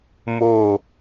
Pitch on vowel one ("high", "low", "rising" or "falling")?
falling